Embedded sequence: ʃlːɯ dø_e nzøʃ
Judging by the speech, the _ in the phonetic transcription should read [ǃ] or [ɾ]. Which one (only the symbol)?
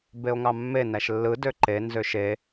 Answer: ǃ